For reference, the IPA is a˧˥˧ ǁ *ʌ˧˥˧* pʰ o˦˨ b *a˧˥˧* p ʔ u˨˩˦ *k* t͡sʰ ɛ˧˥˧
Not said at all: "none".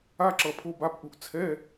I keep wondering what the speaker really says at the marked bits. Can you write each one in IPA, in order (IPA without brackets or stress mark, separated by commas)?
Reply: ʌ˩˧˩, a˧˥˧, ʔ